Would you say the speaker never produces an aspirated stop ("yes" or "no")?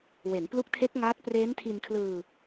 no